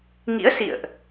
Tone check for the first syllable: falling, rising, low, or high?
rising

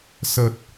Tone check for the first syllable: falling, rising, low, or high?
low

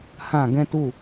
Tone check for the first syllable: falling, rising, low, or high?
falling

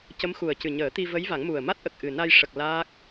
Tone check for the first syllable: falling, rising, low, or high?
rising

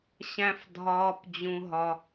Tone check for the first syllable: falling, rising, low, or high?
high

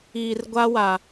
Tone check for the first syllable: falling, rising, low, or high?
low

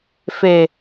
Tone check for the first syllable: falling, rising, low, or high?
low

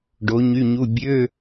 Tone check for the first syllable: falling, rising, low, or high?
rising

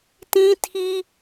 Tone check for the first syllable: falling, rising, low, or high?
high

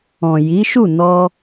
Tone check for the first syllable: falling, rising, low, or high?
low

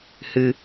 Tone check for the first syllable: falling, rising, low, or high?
low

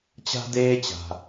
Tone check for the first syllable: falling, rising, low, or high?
high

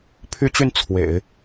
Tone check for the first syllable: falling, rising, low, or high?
high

